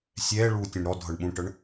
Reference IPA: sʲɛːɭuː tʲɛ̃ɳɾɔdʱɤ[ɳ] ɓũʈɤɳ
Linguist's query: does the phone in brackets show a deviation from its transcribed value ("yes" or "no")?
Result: no